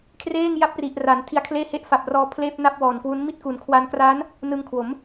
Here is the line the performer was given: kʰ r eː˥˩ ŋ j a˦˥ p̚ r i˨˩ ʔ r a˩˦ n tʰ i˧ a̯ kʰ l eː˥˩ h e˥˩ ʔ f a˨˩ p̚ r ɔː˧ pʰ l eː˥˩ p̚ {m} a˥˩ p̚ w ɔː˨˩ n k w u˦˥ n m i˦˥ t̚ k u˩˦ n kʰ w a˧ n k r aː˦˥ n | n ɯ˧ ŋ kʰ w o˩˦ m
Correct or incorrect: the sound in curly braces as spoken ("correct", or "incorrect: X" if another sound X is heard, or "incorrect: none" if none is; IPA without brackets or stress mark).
incorrect: n